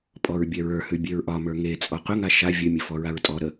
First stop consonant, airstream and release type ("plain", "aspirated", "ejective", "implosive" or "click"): ejective